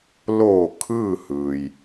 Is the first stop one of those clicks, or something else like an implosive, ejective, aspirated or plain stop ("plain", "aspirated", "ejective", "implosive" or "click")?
aspirated